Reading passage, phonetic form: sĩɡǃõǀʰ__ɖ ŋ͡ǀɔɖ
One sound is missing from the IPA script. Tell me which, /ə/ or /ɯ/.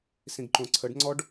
ə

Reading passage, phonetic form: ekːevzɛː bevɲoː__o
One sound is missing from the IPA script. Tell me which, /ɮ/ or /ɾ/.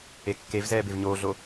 ɮ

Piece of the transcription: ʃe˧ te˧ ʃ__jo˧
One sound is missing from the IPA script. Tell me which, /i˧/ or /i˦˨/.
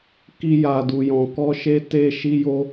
i˧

